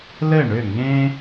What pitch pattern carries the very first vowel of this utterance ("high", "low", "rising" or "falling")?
falling